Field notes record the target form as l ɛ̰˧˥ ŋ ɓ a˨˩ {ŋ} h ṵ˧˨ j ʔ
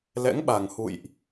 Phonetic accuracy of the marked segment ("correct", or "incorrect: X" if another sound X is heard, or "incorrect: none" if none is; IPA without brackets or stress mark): correct